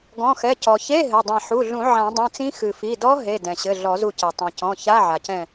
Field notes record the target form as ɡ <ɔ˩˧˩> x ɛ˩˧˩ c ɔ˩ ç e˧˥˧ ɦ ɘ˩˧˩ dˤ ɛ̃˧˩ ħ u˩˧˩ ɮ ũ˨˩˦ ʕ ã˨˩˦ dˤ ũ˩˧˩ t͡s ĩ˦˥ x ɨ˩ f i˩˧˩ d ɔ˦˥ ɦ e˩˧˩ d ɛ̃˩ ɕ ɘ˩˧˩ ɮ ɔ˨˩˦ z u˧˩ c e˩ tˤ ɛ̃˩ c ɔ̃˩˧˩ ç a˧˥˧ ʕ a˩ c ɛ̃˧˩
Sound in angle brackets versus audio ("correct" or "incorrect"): incorrect